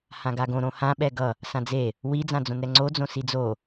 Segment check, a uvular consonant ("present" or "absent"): absent